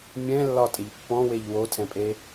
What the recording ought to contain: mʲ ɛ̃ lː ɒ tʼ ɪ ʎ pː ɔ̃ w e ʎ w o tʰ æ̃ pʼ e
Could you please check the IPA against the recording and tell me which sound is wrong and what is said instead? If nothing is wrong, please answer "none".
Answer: æ̃ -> ɛ̃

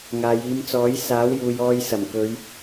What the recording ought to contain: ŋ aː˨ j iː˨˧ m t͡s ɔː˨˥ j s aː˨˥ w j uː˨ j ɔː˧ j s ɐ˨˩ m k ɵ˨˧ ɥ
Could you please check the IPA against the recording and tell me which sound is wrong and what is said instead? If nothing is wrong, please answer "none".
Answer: none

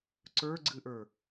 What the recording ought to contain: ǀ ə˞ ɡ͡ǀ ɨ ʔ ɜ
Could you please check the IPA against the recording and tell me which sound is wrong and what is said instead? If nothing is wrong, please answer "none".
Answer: ɜ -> ə˞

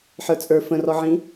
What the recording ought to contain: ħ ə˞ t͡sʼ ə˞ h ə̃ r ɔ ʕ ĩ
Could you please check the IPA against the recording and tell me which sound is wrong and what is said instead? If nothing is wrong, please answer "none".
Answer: h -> f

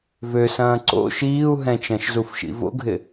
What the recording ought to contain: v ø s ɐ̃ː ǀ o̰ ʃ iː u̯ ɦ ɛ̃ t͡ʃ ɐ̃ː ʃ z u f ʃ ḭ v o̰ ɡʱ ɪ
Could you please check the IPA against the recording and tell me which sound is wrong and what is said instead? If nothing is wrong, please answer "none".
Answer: none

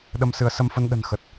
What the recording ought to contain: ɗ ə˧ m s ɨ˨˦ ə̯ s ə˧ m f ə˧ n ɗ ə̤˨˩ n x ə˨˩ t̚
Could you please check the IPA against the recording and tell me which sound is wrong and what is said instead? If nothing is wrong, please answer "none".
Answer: none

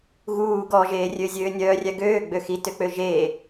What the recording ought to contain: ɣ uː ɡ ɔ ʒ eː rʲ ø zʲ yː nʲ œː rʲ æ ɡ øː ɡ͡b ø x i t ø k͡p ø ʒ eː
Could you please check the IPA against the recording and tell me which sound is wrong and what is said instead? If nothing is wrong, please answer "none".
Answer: yː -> øː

